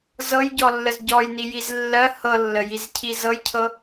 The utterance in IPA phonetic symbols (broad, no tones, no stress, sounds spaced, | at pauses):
z ɤ j ɟ ɔ lː ə z ɟ ɔ j n i j i z lː ɜ h ɤ lː ə j i z cʰ i z ɤ j cʰ ɤ